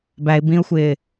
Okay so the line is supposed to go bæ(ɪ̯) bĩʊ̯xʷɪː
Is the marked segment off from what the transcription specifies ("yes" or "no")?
no